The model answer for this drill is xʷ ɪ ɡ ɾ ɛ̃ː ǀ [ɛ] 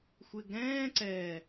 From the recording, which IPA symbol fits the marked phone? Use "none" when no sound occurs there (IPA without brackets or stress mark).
ɛ